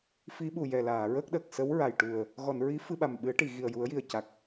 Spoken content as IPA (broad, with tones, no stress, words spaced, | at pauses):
fi˧˥ɓu˨˩ jɛ˨˩laː˨˩˨ɹə˦˥k̚ɗə˨˩k̚ sə˧˥wɹa˨˩jʈu˨˩ə̯ | ɣɔ˨˩˨n ɹi˧˥ fɨ˧ɓa˨˩mɓɨ˨˩˦ə̯ ʈi˨˩˨ ɣi˨˩ə̯ju˨˩˦ə̯ji˨˩ə̯ ca˨˩k̚